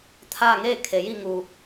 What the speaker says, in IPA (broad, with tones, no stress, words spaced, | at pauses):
t̪ʰaː˥˨ŋeː˥˨ kʰe˩˧ji˥˨ ŋuː˩